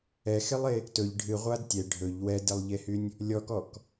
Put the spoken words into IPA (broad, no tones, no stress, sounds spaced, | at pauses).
ɛ x e lˠ e | t ɵ ʎ ɖʱ ɨ ʁʷ a d tʲ ɛ ɖʱ ɵ ʎ w ɛ d e lˠ ʎ e h y nʲ | lʲ ɔ k ɔ k